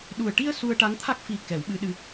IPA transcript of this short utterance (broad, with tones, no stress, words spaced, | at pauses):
ɗu˨˩ə̯ʈi˧ə̯ su˧ə̯ʈa˧˥ŋt̪ʰa˦˥k̚ fi˨˩˦ kɛ˨˩˦wɓɨ˧˥ɗɨ˧